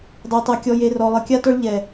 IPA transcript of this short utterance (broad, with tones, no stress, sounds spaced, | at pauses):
dˤ ɘ˨ o̯ tˤ a˨ kʲ ɔ˨ j e˨ r ɔ˨ lˠ ɘ˨ kʲ a˦ t ɔ˦ ɭ ʎ ɛ˨